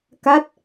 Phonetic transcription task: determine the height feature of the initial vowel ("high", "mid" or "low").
low